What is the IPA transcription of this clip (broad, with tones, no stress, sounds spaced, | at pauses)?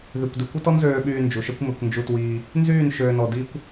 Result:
ð y˨ kʷ d y˨ kʷ œ˦ t ɔ˦ n z øː˧ ɓ yː˧ n d͡ʒ u˨ ʃ œ˦ kʷ m ø˧ kʷ n d͡ʒ u˧ t w iː˧ | n z yː˦˨ n ʃ øː˨ n ɔ˨ d iː˦ kʷ